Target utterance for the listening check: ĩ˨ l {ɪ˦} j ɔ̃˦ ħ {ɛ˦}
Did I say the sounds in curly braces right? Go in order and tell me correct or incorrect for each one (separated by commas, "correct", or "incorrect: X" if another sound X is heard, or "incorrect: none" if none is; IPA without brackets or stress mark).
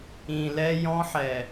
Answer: incorrect: ɛ˦, incorrect: ɛ˨